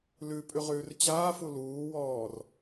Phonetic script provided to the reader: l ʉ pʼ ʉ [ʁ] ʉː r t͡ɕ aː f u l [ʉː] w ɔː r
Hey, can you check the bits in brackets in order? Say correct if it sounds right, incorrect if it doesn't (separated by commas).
correct, incorrect